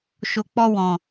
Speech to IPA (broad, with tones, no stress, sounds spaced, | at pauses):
ʃ o˨ k͡p ɔ˧ w ɔ̃˨